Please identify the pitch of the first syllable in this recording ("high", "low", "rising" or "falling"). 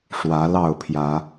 rising